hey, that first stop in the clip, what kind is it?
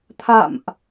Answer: aspirated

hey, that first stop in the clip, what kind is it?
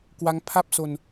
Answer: plain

